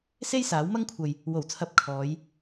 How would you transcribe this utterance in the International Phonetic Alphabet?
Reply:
se˥jsaː˨˥wmɐ˥ŋkʷʰɐ˨j | wo˨˩wt͡sʰɐ˨˥p̚ kʰɔː˨˧j

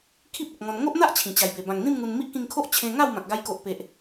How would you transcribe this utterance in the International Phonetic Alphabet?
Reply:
kʰi˦p̚ ə˨k̚ŋɔ̃˧n ŋo˦ʔn̪a˦ʔ t͡ɕʰĩ˨˩t͡ɕa˨˩jbe˨˩ bã˨˩ŋn̪ĩ˥˧m ŋu˧n mi˦ʔkĩ˧ŋkʰo˦ʔ t͡ɕʰẽ˧ ŋa˥˧w mã˨k̚ɡa˧j ko˨ʔpe˨ʔ

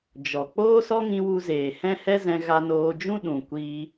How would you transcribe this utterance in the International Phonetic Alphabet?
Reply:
d͡ʒɔ˨ k͡poː˦sɔ˦ŋĩ˧ wu˧zeː˨ hɛ̃˦hɛ˦zɛ̃˧ ɣa˧noː˧d͡ʒũ˦ ɗũ˨ kʷiː˧

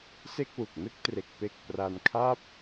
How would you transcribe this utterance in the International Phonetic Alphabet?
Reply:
se˥˩k̚wu˨˩k̚nɯ˥˩k̚tre˨˩k̚ pe˨˩k̚ pra˧nkʰa˥˩p̚

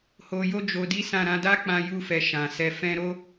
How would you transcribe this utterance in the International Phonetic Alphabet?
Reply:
ho˧jo˦d͡ʒo˧ di˦sã˦˨ ɾã˧da˦k͡pã˧ ju˧fɛ˨ ʃã˨sɛ˧ fɛ̃˦ ɾo˦

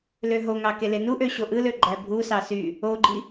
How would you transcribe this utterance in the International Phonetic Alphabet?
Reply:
løɦoŋɑ kelenuʔø ɕoʔɯlø ɡ͡ǃæbʱusɑ sy | oɡ͡ǃi

